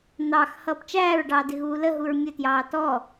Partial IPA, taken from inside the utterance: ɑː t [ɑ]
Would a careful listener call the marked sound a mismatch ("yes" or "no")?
yes